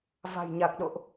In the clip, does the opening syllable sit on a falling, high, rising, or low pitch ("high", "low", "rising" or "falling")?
low